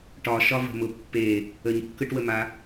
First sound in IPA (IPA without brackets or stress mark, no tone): ʈ